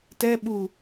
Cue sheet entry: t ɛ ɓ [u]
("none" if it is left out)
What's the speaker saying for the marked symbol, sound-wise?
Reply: u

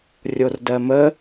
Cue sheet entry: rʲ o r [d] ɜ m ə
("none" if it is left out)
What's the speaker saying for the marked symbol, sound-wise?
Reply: d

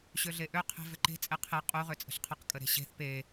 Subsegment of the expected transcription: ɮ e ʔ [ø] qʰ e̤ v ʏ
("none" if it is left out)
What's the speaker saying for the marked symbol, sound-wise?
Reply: ø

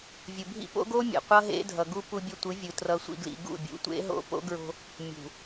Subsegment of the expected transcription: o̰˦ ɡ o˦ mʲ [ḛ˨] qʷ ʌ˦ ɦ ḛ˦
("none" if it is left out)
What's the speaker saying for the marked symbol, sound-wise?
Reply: ḛ˨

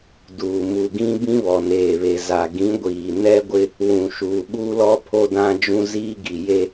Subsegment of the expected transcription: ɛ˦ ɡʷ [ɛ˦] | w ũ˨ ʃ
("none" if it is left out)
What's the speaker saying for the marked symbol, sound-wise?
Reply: ɪ˦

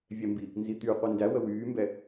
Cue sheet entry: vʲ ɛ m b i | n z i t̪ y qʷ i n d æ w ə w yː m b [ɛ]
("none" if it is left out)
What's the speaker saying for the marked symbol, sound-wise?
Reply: ɛ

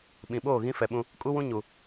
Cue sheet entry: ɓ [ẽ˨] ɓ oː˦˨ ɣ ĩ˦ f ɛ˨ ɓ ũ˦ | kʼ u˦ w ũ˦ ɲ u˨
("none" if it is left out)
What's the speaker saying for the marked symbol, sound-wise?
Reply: ĩ˨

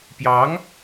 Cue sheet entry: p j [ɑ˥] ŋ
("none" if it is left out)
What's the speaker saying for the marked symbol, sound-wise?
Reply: ɑ˧˥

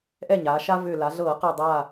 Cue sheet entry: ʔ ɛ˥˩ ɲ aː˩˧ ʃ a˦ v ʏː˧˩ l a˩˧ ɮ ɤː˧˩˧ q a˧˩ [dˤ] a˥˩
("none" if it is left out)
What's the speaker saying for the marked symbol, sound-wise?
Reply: dˤ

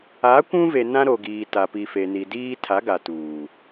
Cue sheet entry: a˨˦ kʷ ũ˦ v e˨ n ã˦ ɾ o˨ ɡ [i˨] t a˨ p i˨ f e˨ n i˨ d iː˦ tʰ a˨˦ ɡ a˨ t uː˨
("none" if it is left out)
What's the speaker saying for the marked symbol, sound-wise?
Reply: iː˨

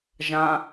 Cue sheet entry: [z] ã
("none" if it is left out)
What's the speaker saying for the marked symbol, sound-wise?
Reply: ʒ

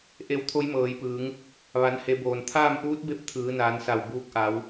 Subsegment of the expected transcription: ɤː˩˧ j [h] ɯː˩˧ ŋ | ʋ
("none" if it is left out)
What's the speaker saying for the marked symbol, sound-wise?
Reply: p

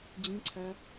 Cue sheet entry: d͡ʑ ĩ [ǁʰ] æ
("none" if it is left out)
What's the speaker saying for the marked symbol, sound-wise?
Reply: ǀʰ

